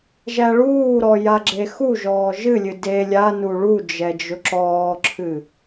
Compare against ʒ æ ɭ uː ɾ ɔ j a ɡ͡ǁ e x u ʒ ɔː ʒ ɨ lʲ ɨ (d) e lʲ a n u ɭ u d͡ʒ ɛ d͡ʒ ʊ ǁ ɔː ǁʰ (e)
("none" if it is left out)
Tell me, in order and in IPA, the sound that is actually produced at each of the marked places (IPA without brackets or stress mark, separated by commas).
d, ɨ